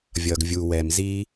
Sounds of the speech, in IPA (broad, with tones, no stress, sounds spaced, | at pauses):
vʲ ʌː˨ ɡ vʲ uː˨ w ɛ˨ m z iː˧